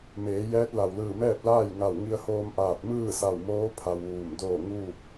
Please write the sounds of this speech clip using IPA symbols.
m eː˩˧ j ɛː˧˥ t̚ l a˩ w l ɯː˧˩ m ɛː˥˨ p̚ l aː˥˨ j ŋ a˧˩ w ŋ i˧ ə̯ h oː˧ m ʔ aː˧˩ t̚ m ɯː˥˨ s a˧˩ w m oː˧˥ pʰ a˧ w ʋ uː˧˩ m d oː˥˨ ŋ uː˥˨ k̚

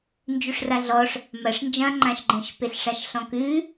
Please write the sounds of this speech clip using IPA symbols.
n d͡ʒ ʉ ʂ r a ɮ ɔ ʂ | m ɐ ʂ n d͡ʒ ɐ̃ ŋ͡ǃ ã ʃ ɡ͡ǃ ə̃ ʃ p e ɬ ʂ a ʃ ɬ ɔ̃ k ʉ

